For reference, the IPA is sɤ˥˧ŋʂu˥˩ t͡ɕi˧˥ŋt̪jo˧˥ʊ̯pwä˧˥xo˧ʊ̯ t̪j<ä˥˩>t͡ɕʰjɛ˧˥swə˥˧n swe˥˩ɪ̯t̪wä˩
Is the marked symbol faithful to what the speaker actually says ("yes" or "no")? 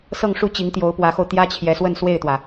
no